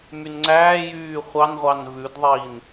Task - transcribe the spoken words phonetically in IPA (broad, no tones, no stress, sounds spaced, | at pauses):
m y n ŋ͡ǀ æː j yː χʷ ɑ n ʁʷ ɑ n v ʉ d ðˤ iː n